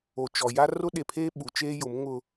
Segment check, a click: absent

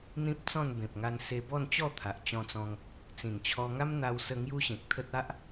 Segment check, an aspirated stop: present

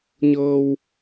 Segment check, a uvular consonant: absent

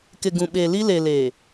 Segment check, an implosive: present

